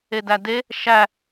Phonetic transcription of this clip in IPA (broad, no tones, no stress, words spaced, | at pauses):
edæde | ʃæ